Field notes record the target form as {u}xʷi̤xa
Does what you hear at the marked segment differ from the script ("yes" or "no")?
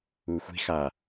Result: no